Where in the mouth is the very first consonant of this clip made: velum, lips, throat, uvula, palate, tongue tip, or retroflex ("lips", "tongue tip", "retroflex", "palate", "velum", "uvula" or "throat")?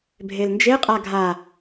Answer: lips